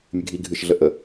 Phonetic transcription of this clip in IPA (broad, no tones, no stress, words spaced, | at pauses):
mʲɨɡʱi ɡʱɨʃ ɮəʔə